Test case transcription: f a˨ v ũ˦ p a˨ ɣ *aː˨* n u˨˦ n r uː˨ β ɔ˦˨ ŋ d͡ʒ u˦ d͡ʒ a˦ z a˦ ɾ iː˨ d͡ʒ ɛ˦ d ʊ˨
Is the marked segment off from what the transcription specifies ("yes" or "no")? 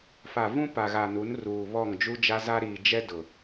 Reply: yes